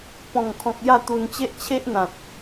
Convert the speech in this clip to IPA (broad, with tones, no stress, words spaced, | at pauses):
pɔ̃˨˩ŋkʰɔ̃˨k̚ ja˥˧t̪u˧nt͡ɕe˦ʔ t͡ɕʰe˦ʔn̪ã˨t̚